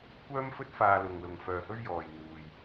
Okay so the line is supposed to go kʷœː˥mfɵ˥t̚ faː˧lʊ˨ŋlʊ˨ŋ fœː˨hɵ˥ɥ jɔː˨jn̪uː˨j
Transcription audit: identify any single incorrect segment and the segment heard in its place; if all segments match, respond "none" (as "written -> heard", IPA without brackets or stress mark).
none